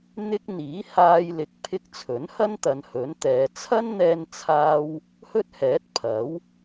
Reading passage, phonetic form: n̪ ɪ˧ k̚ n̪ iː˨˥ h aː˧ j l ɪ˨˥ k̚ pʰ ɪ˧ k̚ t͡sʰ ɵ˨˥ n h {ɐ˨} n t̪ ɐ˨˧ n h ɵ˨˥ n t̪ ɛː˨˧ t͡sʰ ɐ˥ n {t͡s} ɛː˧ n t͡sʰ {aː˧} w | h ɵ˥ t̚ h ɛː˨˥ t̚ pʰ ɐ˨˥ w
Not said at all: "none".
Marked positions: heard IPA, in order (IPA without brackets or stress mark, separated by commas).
ɐ˥, n̪, aː˧